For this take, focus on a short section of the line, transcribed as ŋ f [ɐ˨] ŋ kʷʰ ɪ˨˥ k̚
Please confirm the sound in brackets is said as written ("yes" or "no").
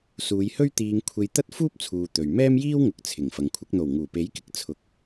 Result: yes